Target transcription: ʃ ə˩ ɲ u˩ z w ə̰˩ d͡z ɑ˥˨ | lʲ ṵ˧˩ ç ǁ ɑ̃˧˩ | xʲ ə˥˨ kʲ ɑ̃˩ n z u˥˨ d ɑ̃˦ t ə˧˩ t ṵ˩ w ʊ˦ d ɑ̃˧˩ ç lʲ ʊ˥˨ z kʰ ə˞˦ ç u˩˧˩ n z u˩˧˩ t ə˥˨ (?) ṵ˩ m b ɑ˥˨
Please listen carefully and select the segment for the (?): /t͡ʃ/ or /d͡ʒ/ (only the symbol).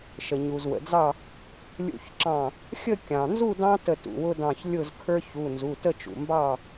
t͡ʃ